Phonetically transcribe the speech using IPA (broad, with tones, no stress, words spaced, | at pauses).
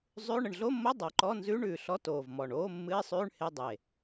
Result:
zˤʉ˧˥˧ ɳə˨˩ɳɮo˧˥˧mːo˧˥˧ dˤo˨˩ǃɔ˧˥˧nzʉː˧˥˧ɳʉː˨˩ ɬɔ˧˥˧toː˨˩vmɔ˨˩ɳ oː˧˥˧mːɨ˧˥˧ɪ̯sˤʉː˧˥˧ɳ he˧˥˧dˤe˨˩